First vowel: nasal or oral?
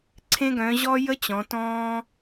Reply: nasal